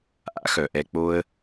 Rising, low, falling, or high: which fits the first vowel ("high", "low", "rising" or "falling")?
high